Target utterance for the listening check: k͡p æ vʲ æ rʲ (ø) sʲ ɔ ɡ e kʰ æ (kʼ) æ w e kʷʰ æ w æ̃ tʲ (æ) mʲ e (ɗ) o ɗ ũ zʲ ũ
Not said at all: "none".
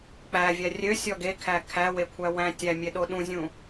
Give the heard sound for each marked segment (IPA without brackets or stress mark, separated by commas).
ø, kʰ, æ, ɗ